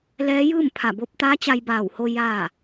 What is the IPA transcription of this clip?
lɛː˧˥ jɯː˥˨m pʰa˧˩bo˧p̚t̪aː˧˥ t͡ɕa˧jbaː˧˩who˧ jaː˥˨

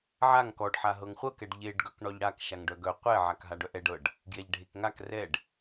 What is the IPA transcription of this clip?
ʕaŋ kɔɖħa ɦɤŋχʷɤkɛɖ ʎeɖɡœk ɳɔʎɽakʃaŋ ɖœɡœ qʷɛ ʕakɦaɖœʔɛɖ ɤɖ | ɡjɛʎɖʱekŋak rɛɖ

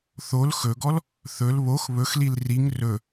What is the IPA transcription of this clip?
θol xɵɡɔl | θɵl βox βɵxlil riŋ rɵ

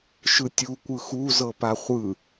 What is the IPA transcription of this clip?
ʃɯtʲu kʷɯxu zɤpaχʷɯ

